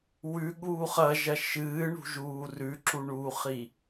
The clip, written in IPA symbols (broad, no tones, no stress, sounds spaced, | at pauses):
w ʉ ɠ uː χ ɐ ʒ ɐ ʃ ɨː ɳ ṳ ʒ uː r ʉ ǁ u ɳ uː χ i